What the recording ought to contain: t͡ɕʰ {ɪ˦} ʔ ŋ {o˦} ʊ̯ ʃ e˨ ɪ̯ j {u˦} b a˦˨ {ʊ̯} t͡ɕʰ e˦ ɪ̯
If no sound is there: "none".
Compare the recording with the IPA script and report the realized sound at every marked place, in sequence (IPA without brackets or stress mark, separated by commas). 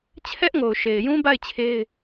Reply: ɛ˦, o˨, ũ˦, ɪ̯